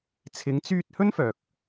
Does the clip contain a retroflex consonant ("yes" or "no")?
no